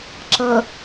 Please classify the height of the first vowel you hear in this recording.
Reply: mid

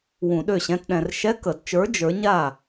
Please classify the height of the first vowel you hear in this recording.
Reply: high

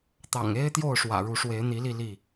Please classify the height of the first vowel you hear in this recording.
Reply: low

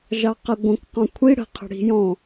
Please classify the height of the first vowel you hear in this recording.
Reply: low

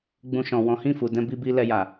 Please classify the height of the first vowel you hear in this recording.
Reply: high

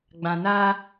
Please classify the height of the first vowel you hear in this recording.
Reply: low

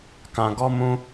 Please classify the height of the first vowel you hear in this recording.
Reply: low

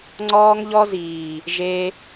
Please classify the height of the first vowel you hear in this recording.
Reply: mid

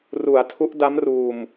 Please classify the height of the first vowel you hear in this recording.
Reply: high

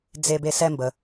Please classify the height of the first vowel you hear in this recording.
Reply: mid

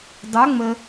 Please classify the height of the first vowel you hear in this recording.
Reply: mid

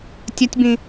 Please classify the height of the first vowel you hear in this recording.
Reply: low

